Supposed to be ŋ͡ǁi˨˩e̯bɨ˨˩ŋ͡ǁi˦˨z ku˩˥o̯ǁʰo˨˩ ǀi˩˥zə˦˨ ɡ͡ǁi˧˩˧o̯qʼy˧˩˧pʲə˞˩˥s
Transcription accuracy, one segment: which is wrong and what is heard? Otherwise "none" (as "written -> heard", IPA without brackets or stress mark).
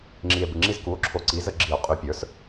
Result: none